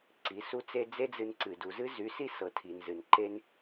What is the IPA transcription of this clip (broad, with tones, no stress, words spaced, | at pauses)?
ǀi˨˦su˦t͡se˦ d͡ze˦d͡zɨ˧nǀɨ˨ du˨zɨ˦zy˨˦si˦ sɤ˨tʰi˨n zɨ˨nǃe˧n